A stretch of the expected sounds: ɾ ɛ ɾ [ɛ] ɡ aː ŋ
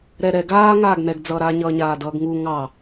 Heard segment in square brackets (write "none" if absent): ɛ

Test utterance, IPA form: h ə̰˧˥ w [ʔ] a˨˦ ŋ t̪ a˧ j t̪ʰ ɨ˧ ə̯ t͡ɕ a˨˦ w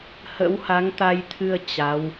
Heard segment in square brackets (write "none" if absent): h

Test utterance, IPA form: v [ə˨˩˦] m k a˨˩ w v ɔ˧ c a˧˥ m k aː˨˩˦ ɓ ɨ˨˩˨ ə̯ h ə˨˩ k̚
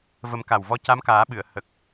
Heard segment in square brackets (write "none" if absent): ə˨˩˦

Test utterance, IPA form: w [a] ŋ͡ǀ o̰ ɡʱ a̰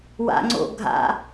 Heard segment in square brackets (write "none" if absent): a̰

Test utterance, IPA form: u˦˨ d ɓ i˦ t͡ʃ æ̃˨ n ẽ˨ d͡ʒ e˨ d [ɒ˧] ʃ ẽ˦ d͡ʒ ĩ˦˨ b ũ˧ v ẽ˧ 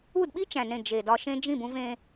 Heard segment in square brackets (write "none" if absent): ɒ˧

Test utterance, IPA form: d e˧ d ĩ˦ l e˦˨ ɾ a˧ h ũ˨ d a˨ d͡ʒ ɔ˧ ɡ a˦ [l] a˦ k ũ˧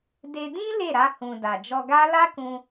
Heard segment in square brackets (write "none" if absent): l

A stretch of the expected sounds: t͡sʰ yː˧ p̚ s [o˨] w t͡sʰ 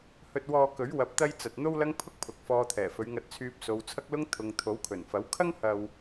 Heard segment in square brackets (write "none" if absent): o˨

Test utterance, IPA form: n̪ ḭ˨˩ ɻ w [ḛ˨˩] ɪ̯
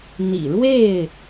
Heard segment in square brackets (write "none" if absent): e˥˨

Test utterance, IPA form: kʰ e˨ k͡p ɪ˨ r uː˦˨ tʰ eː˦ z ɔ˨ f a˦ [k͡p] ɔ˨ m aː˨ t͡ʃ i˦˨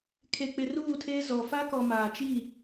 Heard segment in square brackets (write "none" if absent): k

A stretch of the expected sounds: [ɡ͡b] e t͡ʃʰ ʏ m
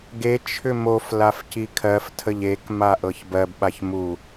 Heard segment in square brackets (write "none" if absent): ɡ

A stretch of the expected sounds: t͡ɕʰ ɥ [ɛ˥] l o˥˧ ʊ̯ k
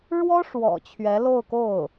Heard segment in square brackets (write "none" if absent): ɛ˧˥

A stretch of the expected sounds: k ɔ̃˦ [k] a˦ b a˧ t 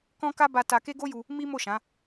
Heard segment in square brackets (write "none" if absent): k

